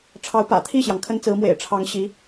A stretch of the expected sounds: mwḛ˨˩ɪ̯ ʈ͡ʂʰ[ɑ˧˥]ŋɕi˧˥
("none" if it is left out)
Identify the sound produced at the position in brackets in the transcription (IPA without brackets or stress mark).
ɑ˧˥